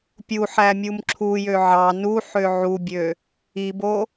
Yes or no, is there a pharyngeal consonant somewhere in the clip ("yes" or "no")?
yes